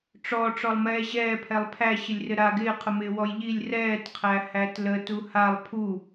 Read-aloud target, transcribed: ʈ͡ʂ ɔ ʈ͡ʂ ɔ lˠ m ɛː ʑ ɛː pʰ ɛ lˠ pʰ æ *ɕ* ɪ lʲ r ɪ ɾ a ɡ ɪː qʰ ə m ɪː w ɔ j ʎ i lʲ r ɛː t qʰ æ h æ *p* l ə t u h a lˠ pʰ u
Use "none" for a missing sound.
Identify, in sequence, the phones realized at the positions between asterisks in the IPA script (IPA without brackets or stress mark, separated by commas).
ɕ, t